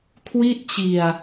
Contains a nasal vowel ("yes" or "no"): no